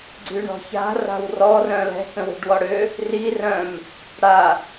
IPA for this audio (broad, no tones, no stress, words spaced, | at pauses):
ɡ͡ǀyɳɔ̤ça̤ ra̤wrɔ rœ̃lɛ̤ kə̃wi̤ɖwɔɽø | ri rœ̃m | ɽa